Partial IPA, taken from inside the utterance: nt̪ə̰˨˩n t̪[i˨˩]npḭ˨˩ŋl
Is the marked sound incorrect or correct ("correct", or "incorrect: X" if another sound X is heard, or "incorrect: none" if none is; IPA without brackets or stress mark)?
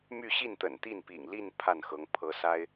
incorrect: i˥˩